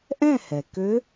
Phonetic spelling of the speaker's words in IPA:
ʔ ɛ̃˥˨ h ɛ˩ k ø˦˥

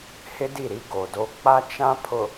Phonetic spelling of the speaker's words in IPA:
h ɪ˦ d i˦˨ ɾ i˦ ɡ o˨ d o˦ k͡p a˦ t͡ʃ ã˦ pʰ ʊ˨

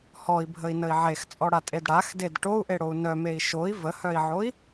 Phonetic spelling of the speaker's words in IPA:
h ɔ i̯ bʱ ə i̯ n ə i̯ ʕ e x t͡sʼ ɔ ɽ a tʼ e d ɽ a x d e d ʈ o u̯ ʔ e ɽ o u̯ n œ m e i̯ ʃ o i̯ v ə h œ i̯ ʕ o i̯

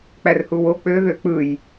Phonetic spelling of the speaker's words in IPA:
k͡p æ r h u w o k͡p ø ð ø k͡p ɯ j

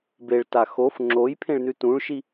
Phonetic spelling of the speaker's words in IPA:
b e ɭ t a x o f ŋ͡ǁ o j pʰ ẽ ɭ n ʉ t ũ ɭ ʃ i

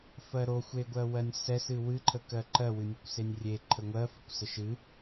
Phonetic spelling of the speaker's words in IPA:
f ɜ ɾ o xʷ e ɡʷ ɜ w ɜ nʲ s ɛ s ɨ w ɨ ǃʰ ə k ɜ ǃ ɜ w ɨ nʲ ə kʷ s e nʲ rʲ e ǃʰ ə ŋʷ ɜ f ɨ kʷ s ə ʃ ɨ

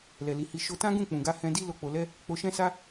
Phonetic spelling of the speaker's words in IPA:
l ɛ˨ l i˨ h i˧ ʃ o˦ t ã˦ ɡ ũ˦˨ k͡p ũ˨ ɡ a˧ h ɛ̃˧ d i˦ l o˦˨ k͡p o˧ l ɛ˦ | k͡p o˧ ʃ ɛ̃˦ s a˦

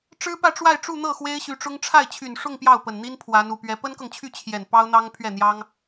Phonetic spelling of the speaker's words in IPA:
ʈ͡ʂ ɻ̩˥ p ä˥˧ ʈ͡ʂ w a˥˧ ɪ̯ ʈ͡ʂ u˥˧ n̪ ɤ˥˩ x w e˥ ɪ̯ ɕ y˧˥ ʈ͡ʂ ʊ˥ ŋ ʈ͡ʂʰ a˥˩ ɪ̯ t͡ɕʰ y˨˩ n ʂ ʊ˥˧ ŋ p j ɑ˥˩ ʊ̯ p ə˨˩ n n̪ i˥ n pʰ w a˧˥ n u˨˩ p ɥ ɛ˧˥ p ə˥ n k ɤ˨ ŋ t͡ɕʰ y˥˩ t͡ɕʰ j ɛ˨˩ n p ɑ˥ ʊ̯ n̪ ɑ˥ ŋ pʰ ɥ ɛ˥˩ n̪ j ɑ˥ ŋ

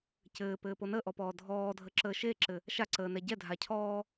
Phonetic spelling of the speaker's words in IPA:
c ɘː p ɘː p o n ə ʔ ɔ p ɔː dʱ ɔː dʱ ə ǁ əː ʃ e ǁ ɘ | ʃ a ǀ əː n ɛ ɟ ɛ dʱ a cʰ ɔː

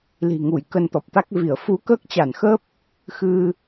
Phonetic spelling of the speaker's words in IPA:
l i̤˨˩ ŋ u˧˩ j k ə˧ n t̪ ɔ˨˩ p̚ t̪ a˦˥ k̚ v i˧˩ ə̯ f u˨˦ k əː˦˥ k̚ t͡ɕ a˧˩ n x ə˦˥ p̚ | x ɨ˧

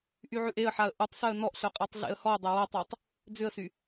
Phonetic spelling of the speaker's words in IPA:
ʔ y ʕ ʉ ʔ e ə̯ ħ a ə̯ ʔ u tˤ s œ ə̯ n ɔ ʔ ɬ œ qʼ e tˤ ɮ ḛ ə̯ h ɔ ə̯ dˤ e w a tˤ e tˤ | d͡z ʏ ə̯ s y

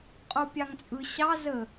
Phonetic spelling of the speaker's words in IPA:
qʼ o pʲ ɑ ŋ t͡sʼ ɯ ɕ ɑ z ə

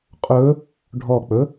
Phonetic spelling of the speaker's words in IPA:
qʼ ɵ | ɖʱ ɔ k͡p ɵ

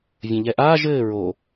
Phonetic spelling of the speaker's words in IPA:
vʲ ɐ̃ ʎ ɛ ʔ aː ʒ ɘː ɹ o

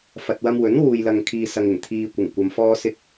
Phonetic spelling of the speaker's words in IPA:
f ɐ˨ t̚ w ɐ˧ m w ɵ˨˥ n w uː˨ j l ɐ˨ ŋ kʰ iː˨ s ɐ˨ ŋ ɪ˨˩ ŋ t̪ʰ iː˨ kʷ ɪ˨˩ ŋ kʷ ɐ˨ m f ɔː˧ s ɪ˧ k̚

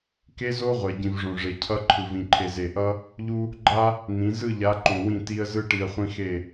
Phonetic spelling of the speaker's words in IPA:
k e˦ z o˦ ʁʷ ɛ˨ ɟ ĩ˨ v ʐ õ˨ ʐ e˨ cʰ ʌ˦ ǃʰ ɯ˨ v ĩ˨ ǃʰ e˨ z e˨ ʔ ʌ˦ | ʎ u˦ | ɡ͡ǃ a˦ | n̪ ĩ˨˦ z ɯ˦˨ ʎ a˨˦ ǃ õ˨ w ĩ˦˨ t i˦ ə̯ z ɯ˦ ʈ i˨ ə̯ χʷ ĩ˦ x e˦˨

